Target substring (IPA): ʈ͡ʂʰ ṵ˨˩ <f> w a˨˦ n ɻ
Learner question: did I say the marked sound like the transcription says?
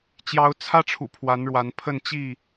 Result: no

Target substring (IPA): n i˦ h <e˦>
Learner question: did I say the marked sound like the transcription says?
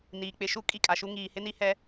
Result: no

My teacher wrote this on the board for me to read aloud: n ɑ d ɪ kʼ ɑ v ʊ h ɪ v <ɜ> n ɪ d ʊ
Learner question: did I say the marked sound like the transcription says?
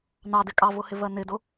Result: yes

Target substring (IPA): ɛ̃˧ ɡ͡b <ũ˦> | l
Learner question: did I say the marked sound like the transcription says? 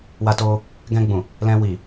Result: no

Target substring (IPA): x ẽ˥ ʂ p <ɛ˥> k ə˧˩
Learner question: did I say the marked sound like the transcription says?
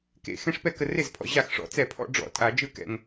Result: no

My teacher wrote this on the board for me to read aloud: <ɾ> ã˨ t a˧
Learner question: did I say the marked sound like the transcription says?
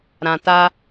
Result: yes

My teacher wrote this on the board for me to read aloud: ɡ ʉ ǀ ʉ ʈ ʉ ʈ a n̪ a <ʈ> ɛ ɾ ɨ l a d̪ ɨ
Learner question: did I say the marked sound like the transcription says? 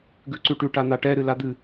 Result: yes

